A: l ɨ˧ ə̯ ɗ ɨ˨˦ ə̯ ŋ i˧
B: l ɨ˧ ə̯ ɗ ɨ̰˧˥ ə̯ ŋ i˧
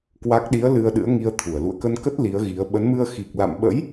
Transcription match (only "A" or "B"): B